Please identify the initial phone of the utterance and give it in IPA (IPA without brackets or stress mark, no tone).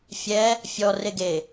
fʲ